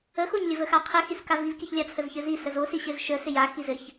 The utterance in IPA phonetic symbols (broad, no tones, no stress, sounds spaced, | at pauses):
ə x o ɲ lʲ ə v ə x a qʰ ɪ x i s k a v i v k i ç lʲ a t͡sʰ ə z ç ɘ z i s ə z o s i ɕ ɘ z ʃ ə s ɪ j a x i z ɘ ç